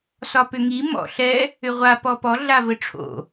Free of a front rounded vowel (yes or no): no